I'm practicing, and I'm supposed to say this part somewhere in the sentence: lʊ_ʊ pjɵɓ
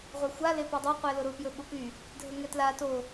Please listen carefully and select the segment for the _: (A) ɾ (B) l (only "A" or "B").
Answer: A